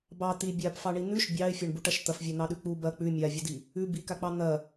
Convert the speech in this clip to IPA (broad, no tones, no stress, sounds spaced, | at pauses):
b ɑ t̪ i bʲ a p f ɑ ɳ i n̪ ʉ ʃ bʲ ɑ ɪ̯ fʲ ɐ ɳ b u ʈ ɐ ʃ t̪ ɐ f vʲ a n̪ ɑ ɗ ʉ k͡p u b ɐ k͡p ʉ mʲ a vʲ u d i | ʉ b i k a k͡p ɑ n̪ ɐ